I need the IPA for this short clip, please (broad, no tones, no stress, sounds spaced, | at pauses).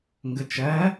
ŋ ɡ ə t͡ʃ ɜ